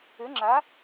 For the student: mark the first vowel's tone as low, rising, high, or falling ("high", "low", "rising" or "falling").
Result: rising